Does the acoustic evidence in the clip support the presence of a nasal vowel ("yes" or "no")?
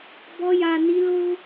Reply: no